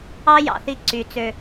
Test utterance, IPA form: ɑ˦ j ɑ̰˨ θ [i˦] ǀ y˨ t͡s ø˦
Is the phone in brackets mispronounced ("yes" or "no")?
no